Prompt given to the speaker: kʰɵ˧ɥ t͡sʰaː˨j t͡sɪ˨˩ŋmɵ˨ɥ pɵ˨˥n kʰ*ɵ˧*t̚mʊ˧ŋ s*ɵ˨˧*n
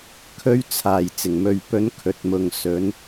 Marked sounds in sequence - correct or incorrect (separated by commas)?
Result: correct, correct